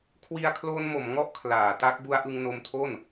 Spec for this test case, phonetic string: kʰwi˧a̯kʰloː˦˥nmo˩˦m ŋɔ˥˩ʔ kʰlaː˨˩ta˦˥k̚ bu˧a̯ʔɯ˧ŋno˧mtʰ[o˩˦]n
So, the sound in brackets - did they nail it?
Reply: no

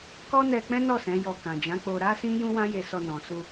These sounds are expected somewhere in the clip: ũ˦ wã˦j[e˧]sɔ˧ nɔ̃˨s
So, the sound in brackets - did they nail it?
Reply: yes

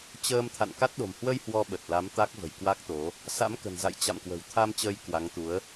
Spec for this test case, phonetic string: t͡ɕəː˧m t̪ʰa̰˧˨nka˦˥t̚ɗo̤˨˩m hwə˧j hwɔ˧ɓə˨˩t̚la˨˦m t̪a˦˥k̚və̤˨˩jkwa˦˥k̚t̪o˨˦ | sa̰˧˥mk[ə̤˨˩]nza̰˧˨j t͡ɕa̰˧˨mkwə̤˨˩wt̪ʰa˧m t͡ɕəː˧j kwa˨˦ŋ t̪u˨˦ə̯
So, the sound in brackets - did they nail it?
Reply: yes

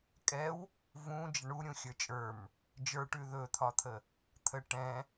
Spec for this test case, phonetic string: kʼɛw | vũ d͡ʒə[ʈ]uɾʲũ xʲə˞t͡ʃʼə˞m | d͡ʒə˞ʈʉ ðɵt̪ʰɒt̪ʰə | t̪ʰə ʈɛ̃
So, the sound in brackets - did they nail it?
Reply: no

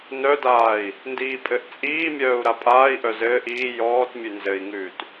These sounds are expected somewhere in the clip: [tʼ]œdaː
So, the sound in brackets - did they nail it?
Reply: no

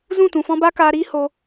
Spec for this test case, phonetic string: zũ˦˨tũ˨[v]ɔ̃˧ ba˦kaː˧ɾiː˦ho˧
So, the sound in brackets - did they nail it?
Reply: no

